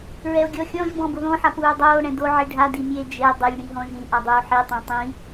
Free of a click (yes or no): yes